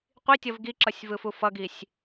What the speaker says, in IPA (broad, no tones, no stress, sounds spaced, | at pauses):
qʷ i tʲ ʌ v ɡ i ǁ ʌ sʲ v ɯ f u f ʌ ɡ i sʲ